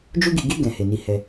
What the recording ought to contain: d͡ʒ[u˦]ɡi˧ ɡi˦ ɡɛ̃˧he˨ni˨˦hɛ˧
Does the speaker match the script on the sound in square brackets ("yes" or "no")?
yes